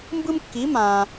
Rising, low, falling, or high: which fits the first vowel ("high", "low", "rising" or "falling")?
high